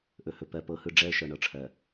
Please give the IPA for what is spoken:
ʔ ɵ˨ h ɵ˨ p ɜ˨ p ɤ˨ h ɯ˨ ɖ͡ʐ ɛ˦ ə̯ ʃ ɤ˨ ɳ ɤ˨ ʈ͡ʂʰ ɜ˨

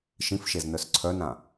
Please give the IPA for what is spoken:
ʃ ĩ f ʃ e z n œ s ǀʰ œ n ã

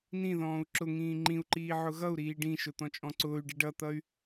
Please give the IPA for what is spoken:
n ĩ ð ɔ̃ː u̯ ǁ ʊ ŋ ĩː ŋ͡ǃ ĩ u̯ ǃ iː ʕ ʊ ɣ ʌ u̯ ɾ iː ɖ ĩ ʃ ʊ t̪ ɔ̃ t͡ʃʼ ɔ̃ ǀ ʊː y̯ ɖ i ɖ ʌ t̪ ʌ y̯

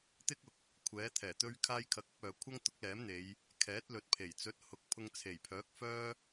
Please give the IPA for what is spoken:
t̪ ɪ˥ k̚ ʊ˨ k̚ | kʷʰ ɛː˨˥ t̪ʰ ɛː˨˩ t̪ ɵ˥ ɥ kʰ aː˥ j kʰ ɐ˧ k̚ ɐ˥ p̚ œː˨ kʷʰ ɐ˥ ŋ t̪ ʊ˨˥ k̚ l ɛː˨˥ m n̪ e˨˧ j | kʰ ɛː˨˥ t̚ l ɵ˨ t̚ pʰ e˨˩ j t͡s ɵ˨˥ t̚ h ʊ˨ k̚ pʰ ʊ˧ ŋ t͡sʰ e˨˩ j pʰ œː˨˥ k̚ f œː˥

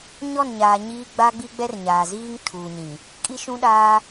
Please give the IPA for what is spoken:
ɲ ɔ˦˨ n ɲ aː˨ ɲ iː˦ ɡ͡b a˦ ɡ͡b i˦ ɡ͡b ɛ˦ r ɲ aː˨ z iː˦ ŋ tʰ uː˨ ɲ ĩ˨ | kʼ i˦ ʃ ũ˦ ɗ aː˦

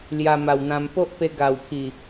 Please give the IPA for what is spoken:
l j a˧ m a˨˩ w n̪ ã˧ m p o˦ ʔ p e˧ ɡ a˨˩ w pʰ i˨˩

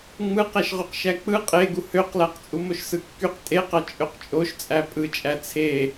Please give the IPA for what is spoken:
ŋ͡m ɯ q æ ʃ ʁ y q ʃ æ k͡p ɯ qʼ e ɡ u h ø q l æ q t͡sʼ u m o ʃ s ɯ kː y q tʼ e q ɑ t͡ʃʼ ø q t͡ʃʼ o ʃ t͡sʼ æ pʼ ɯ t͡ʃʼ æ t͡sʰ e

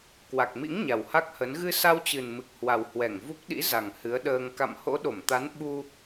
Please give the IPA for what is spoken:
k w a˨˩ k̚ m ḭ˧˥ ŋ ɲ a˨˩ w h a˦˥ k̚ h ə˨˦ n ɣ ɨ˧ s a˧ w t͡ɕ ɨ˨˩ n m ɨ˨˩ k̚ h w a˨˩ w h w ɛ˧˩ ŋ v u˦˥ k̚ ɗ ḭ˧˥ z a˨˩ ŋ h ɨ˨˦ ə̯ ɗ əː˧ ŋ k a̰˧˨ m h o̰˧˥ ɗ o˧˩ m t̪ a˨˦ n ɓ u˧

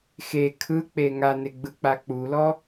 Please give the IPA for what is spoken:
x e kʰ ɯ k͡p e ŋ a n e ɡ͡b ɯ k͡p a k͡p u l ɔ

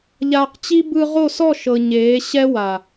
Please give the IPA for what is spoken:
ʎ aː˧ q t͡ɕ i˦ b ɯ˧ ʁ o˦˨ s ɔ˦˨ ʃ ɤ˨ ɲ eː˨˦ ɕ ɛ˦ w a˨

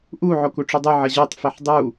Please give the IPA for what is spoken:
ʔ u ʕ o k u ʈ͡ʂ u dˤ u ʕ ʌ ʑ o tˤ f ɛ ħ dˤ u

